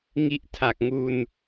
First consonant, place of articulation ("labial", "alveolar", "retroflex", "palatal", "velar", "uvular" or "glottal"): velar